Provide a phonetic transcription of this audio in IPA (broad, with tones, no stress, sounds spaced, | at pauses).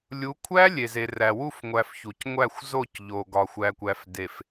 lʲ u˨˦ kʷʰ æ˦ lʲ e˨ z e˨ r æ˨ w u˦˨ f ŋʷ æ˨ f ç u˨ c ŋʷ æ˦˨ xʷ z o˦˨ c ʎ o˨ ɡ ɒ˨ xʷ æ˨ kʷ æ˨ f d e˨ f